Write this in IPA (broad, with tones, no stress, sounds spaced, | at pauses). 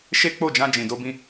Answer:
ʃ e˦ k͡p o˦˨ d͡ʒ ã˧ d͡ʒ ĩ˨ d o˧ b ĩ˧